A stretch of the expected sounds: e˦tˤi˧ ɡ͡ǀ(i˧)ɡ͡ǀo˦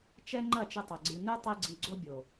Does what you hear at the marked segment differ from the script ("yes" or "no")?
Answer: no